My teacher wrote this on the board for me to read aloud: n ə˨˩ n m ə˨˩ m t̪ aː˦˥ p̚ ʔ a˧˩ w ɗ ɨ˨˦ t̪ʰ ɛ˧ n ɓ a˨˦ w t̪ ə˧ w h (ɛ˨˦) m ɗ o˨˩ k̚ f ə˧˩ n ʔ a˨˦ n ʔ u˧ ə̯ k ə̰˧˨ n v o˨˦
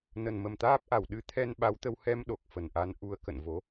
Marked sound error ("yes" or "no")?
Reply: yes